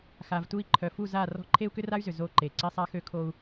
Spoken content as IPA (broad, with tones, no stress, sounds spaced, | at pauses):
x a˨ v t u˦˨ i̯ ǃʰ œ˨ f u˦˨ z a˦˨ r ɔ̤˦ ǃʰ e˦ u̯ k ʏ˦ r a˦ y̯ z ʏ˨ z o˦˨ ǃ e˨ ǀ i˦ sˤ a˦ x ø˦ kʰ o˦ u̯